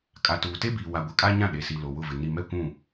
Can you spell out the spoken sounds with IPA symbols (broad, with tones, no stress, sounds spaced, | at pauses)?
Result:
kʼ a˨ t uː˨ t e˦ b iː˨ w a˨ ɡʷ ɛ˨ kʼ a˦ ɲ ã˦˨ ɗ e˨ s i˨ l o˨ w ʊ˦˨ v ɪ˨ n i˨ m ɛ˦ kʷ ũ˦˨